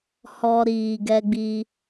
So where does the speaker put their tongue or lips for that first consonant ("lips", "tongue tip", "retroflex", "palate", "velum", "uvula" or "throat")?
throat